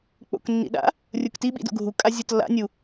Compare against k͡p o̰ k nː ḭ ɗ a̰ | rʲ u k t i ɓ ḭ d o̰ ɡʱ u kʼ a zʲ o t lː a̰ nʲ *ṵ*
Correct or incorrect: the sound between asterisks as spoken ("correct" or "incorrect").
incorrect